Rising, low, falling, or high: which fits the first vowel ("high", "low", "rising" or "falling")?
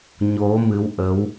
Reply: rising